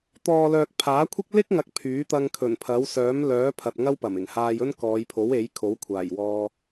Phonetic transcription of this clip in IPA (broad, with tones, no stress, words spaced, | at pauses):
t̪ɔː˨lœː˨k̚pʰaː˨˥kʷʰɪ˥k̚ lɪ˥k̚ ŋɐ˧k̚pʰyː˨˥t̪ɐ˧ŋ kʰɵ˨˩npʰɐ˨˥w sœː˨˥mlœː˨˥ pʰɐ˨t̚ŋɐ˥w pɐ˨˩mɪ˨˩ŋhaː˧j ɵ˥nkɔː˨˧jpʰo˨˥we˨˥j kʰo˨˥wkʷʰaː˨˩jwɔː˧